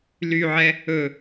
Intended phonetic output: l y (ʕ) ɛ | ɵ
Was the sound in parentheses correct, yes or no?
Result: yes